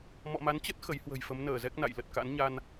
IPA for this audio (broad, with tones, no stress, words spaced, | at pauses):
mɔ̰˧˨ma˨˦nt͡ɕə˦˥t̚ xə˨˦jhwə̤˨˩jfə˨˦m nəː˧˩zɛ˦˥k̚na̰˧˨j lə˨˩t̚ka̰˧˥nɲa˧n